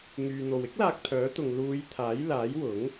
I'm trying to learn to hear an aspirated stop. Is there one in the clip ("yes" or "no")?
yes